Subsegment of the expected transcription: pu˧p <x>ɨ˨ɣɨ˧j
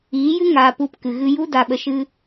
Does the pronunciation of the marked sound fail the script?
yes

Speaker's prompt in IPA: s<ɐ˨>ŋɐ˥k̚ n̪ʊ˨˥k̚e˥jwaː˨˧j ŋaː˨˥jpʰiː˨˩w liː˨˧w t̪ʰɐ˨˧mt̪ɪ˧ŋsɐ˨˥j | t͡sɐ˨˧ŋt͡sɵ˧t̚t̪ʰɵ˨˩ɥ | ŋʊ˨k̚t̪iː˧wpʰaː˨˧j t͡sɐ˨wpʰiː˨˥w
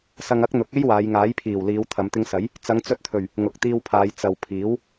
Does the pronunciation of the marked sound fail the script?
yes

